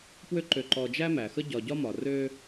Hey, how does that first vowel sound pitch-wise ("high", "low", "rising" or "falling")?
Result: high